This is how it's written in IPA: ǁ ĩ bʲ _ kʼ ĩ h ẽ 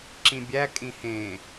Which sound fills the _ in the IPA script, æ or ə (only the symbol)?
æ